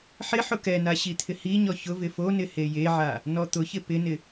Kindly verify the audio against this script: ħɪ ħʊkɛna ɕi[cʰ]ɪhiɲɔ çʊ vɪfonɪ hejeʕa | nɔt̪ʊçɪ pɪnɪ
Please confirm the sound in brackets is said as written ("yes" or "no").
no